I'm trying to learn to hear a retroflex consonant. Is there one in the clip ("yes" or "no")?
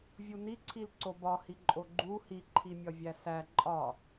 no